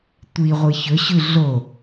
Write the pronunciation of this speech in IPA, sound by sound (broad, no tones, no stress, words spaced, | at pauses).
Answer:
tʷiʁʷɨ çɵɕʉ ɮo